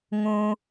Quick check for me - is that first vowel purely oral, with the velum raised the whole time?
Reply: no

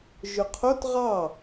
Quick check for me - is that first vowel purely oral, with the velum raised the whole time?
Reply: yes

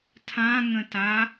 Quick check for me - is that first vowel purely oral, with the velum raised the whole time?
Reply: no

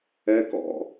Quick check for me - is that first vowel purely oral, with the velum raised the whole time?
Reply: yes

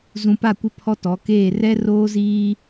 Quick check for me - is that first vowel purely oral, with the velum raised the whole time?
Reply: no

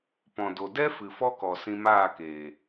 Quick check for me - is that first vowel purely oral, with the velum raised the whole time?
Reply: no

